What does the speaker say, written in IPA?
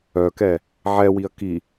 œkɛ | ʕɛwiɐ̯ ki

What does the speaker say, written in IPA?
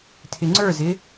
tʰɪŋ͡ǀə˞zɪ

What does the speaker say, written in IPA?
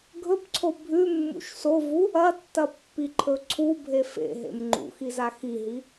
ɡʱɵpǀʰo bʱʉmːṵʃ sovu | ɐtːɐpːiǃʰɵ ǀʰubʱe fḛɦḛm ŋ͡ǃṵxiza xiɦi

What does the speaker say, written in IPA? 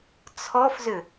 t͡sʰɔfzʏ

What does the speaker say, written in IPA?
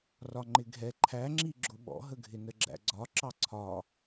rɒŋ͡ǃɪɡʱɛ ǃʰæŋ͡ǁi ɡ͡ǁʊɓɔ̰ɦəɡʱɪ nəɡ͡ǁæ̰ɡ͡ǀɒ ǁɑǀʰɒ

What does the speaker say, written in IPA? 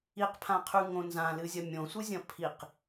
iqpʰãqʰʉŋõ nzãlɨzʲɐ mʲõsʷɨzʲɐ̃ pʰiq

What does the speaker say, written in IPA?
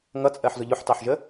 ŋʌt͡sʼɜħzʊ ʎʊħtɑħʒə

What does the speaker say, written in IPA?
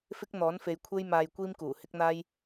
fɪ˥k̚n̪ɔː˨˥nfe˨˧j kʷʰe˥jmaː˧j kʷiː˥mkuː˨˩hɪ˥k̚n̪aː˥j

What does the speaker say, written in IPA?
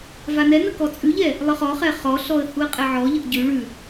vanɛnə kɔt͡sʼʉʎɛ | lˠəχɔχɛ χɔɬɔə̯ huə̯qʼɛʕɔʎəʔ ɟʉ ɭʉ

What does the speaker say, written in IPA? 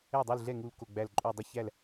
ɛ˥˩dˤu˥˩lɮɛ˥˩ŋu˧˩l ko˧˩ɡ͡bæ˧˩lǃʼu˧˩ dˤə˥˩çæ˥˩l

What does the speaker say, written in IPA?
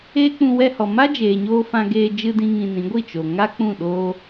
eː˦k͡pũ˧ wɛ˧hɔ˨ ma˦d͡ʒeː˨ɲoː˧ fã˧ɡeː˧ d͡ʒɨ˧dĩ˧ ŋĩ˧nĩ˨˦ ɡʷi˦˨ t͡ʃo˨ ŋa˦k͡pũ˦˨ɗoː˦

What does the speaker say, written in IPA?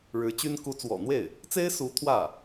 ɻɻ̩˧˥t͡ɕy˥n ku˧˥t͡swɔ̰˨˩n̪we˥˩ɪ̯ | t͡se˥ɪ̯su˧˥ t̪ʰwä˥˩

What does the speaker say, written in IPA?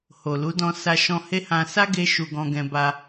ho˨lu˨˦dɔ̃˧ sa˧ʃɔ̃˧he˦ hã˧ sa˦ɡe˧ ʃu˧ɡɔ̃˧ ɡɛ̃˧ba˧

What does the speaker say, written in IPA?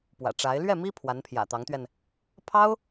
pwä̰˨˩ʈ͡ʂa˧˥ɪ̯ lɥɛ˥˩mi˥ pʰwa˧˥npʰjä̰˨˩t̪ɑ˧˥ŋt̪ɥɛ˧n | pʰɑ˥ʊ̯

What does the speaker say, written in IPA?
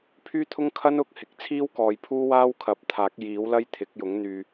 pʰyː˥t̪ʰʊ˥ŋ kʰɐ˥n ʊ˨˥k̚hɪ˨k̚ t͡sʰiː˥wkɔː˨jpʰuː˥waː˥w kʰɐ˨˥p̚t̪ʰaː˨˥k̚jiː˨˥wlɐ˥j t̪ʰɪ˨˥k̚jʊ˨˥ŋn̪yː˧

